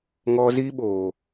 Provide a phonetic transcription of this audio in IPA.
ŋ ɔ˧ z iː˦ ɓ oː˨

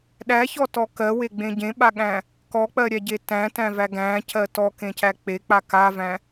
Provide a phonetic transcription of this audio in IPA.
ɗ æ ç ɔ t ɔ k ɜ w e ɡ͡b ẽ ɟ ẽ ɓ a ɠ æ̃ | k ɔ k͡p ɜ ɾʲ æ ɟ e t æ̃ t æ̃ v æ ɡ æ̃ c ɜ t ɔ k ẽ c æ k͡p e k͡p a k a v æ̃

